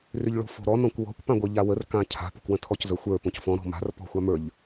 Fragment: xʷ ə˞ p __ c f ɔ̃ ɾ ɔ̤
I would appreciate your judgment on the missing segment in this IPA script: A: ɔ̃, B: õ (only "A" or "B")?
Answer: B